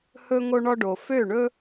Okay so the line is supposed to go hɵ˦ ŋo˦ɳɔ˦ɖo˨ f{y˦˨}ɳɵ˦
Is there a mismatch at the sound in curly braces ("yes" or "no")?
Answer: yes